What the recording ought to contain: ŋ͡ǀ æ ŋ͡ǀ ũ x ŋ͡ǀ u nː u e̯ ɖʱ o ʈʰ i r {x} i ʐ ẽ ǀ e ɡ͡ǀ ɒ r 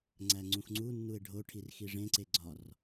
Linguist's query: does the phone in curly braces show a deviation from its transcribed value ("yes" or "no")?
no